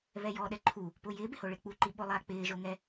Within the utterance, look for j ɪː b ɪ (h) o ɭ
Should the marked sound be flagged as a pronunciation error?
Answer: no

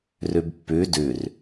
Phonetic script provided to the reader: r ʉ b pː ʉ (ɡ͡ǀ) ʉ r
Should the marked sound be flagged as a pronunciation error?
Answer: yes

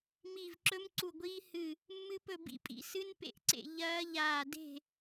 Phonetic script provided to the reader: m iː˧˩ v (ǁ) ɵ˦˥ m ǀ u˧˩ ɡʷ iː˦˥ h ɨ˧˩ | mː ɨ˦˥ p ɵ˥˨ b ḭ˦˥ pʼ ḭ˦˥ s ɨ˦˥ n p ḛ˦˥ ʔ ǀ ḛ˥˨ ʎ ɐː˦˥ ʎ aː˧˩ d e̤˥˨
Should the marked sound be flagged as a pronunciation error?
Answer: no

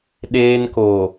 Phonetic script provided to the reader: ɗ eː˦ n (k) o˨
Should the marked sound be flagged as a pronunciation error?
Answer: no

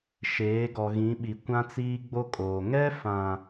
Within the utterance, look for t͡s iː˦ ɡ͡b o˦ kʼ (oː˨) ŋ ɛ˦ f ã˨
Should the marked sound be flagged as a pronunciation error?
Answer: no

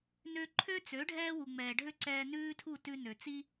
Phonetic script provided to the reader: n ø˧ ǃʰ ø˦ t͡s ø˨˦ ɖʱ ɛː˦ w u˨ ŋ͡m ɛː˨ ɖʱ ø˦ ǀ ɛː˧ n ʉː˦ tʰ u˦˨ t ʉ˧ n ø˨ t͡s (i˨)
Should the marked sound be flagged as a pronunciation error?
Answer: yes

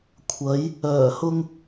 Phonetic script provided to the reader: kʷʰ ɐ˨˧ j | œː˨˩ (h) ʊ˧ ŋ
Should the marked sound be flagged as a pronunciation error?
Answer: no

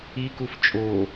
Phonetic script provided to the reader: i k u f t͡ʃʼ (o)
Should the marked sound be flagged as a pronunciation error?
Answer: no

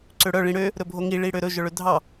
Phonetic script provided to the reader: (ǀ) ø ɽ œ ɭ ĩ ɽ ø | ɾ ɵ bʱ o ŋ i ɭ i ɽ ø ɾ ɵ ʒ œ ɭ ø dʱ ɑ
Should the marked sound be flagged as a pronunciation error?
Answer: no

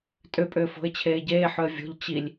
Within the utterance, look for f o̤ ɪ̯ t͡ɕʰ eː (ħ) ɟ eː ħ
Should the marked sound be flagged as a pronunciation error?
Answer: yes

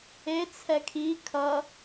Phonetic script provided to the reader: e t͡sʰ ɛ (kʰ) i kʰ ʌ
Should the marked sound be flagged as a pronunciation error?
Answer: no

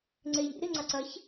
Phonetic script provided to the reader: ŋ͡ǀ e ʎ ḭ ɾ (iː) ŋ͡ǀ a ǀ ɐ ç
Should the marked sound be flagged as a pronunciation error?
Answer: yes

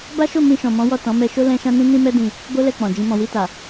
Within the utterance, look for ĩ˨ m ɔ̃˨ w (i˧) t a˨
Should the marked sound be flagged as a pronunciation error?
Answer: no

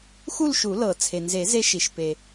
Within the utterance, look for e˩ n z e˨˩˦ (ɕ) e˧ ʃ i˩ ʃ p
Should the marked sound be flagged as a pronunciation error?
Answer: yes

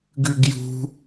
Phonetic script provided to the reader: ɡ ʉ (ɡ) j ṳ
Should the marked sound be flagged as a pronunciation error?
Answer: no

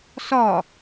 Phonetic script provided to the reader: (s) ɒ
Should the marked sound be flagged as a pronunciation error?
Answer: no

